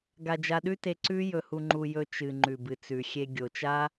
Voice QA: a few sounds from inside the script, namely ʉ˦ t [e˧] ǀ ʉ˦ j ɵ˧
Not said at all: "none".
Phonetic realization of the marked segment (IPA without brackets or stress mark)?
e˧